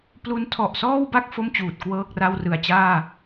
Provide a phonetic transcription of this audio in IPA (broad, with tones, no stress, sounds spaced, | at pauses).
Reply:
p l u˦˥ n tʰ ɔ˨˩ ʔ s ɔː˥˩ w b a˥˩ k̚ f o˥˩ m t͡ɕ uː˨˩ t̚ k w ɤː˥˩ k̚ r a˥˩ w r ɯ˨˩ a̯ t͡ɕ aː˥˩